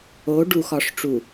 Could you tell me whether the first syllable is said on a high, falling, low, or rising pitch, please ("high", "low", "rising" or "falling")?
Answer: rising